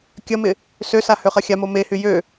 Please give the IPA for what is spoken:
kʲ ɐ m ɪ | s ø s a h ø χ ɐ xʲ a m o m e h y j ø

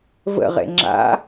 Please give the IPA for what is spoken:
v ə̰ ʁ ḛ ŋ͡ǁ a̰

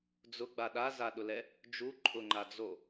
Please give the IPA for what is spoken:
d͡z ʊ ɡ͡b a ɗ a z a ɗ ʊ l ɛ | d͡ʒ u ǃʼ ʊ ŋ͡ǃ a d͡z o

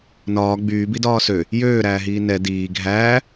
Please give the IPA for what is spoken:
n ɒː ɡ͡b yː b i d ɒː s ø | j øː ɾ æː ɦ iː n ɛ d iː ɡʱ æː

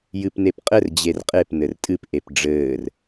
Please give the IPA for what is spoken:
j ɨ p n e p qʼ ɘ r d͡ʑ e r qʼ e p n ɘ r tʼ ɨ p ʔ e p ɖ͡ʐ ɘː r

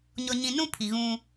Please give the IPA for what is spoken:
ɲ ɔ˨ ɲ ĩ˨ n ũ˦ pʰ i˨ ɣ ũ˦

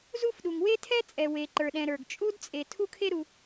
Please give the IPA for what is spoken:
z u˥ f ɗ u˩ ŋ w e˥ tʰ ɛ˥ t͡sʼ ɛ˩ w e˩ ǃ ə˞˩ ɗ ɛ̃˩ ɾ ə˞˩ ɡ t͡ʃʼ u˥ d t͡sʼ e˩ tʰ u˥ kʰ e˥ ɾ u˩

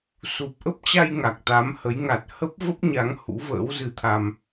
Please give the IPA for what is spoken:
s u˨˩ p̚ ʔ ə˦˥ p̚ t͡ɕ a˧ j ŋ a˨˩ k̚ t̪ a˨˦ m h ə˨˦ j ŋ a˨˩ t̚ h ə˦˥ p̚ v ə˦˥ p̚ ɲ a˨˦ ŋ h ṵ˧˥ v ə̰ː˧˥ w z ɨ˧ t̪ʰ a˧ m

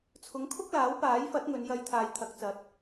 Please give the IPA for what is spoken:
t͡sʰ ʊ˨˥ ŋ kʰ ʊ˥ k̚ l aː˨˥ w p aː˨˥ j f ɐ˨˥ t̚ ŋ ɵ˨˧ n j ɐ˧ j t̪ʰ aː˨ j t̪ʰ ɐ˨˥ k̚ t͡s ɐ˨˥ t̚

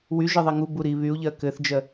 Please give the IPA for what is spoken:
w y ʒ ə ðˤ i ŋ u b u ɾ i β y u̯ ʎ ɜ k ɘ θ d͡ʒ ɜ

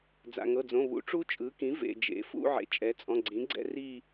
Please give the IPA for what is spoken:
d͡z a̰˩ ŋ ɤ˩˧˩ d͡z õ˩˧˩ β ṵ˩˥ ʈ͡ʂ u˦˥ t͡ʃʼ ɯ˩˥ k ĩ˩˥ v ḛ˩ d͡ʒ ḛ˩˥ f ṵ˥˧ ʕ ḛ˩˥ t͡ʃʼ ɛ˩˥ t͡sʼ ɔ̃˩˧˩ ɡ͡ǀ ĩ˩˥ ɡ͡ǀ ɛ̰˥˧ r i˥˧

